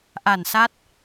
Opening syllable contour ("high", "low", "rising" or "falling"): low